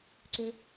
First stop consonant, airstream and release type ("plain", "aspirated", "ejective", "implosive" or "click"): click